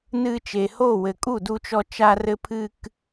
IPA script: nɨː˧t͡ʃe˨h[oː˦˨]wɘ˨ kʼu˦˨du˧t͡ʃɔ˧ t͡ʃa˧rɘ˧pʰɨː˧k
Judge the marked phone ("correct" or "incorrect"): correct